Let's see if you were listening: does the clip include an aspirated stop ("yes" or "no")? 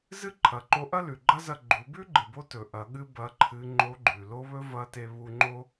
yes